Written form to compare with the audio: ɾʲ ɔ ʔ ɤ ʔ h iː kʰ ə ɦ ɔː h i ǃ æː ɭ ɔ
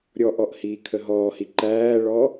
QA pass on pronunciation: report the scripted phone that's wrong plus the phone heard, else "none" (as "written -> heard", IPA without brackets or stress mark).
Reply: ɤ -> ɔ